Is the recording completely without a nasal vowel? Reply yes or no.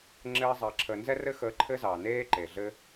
yes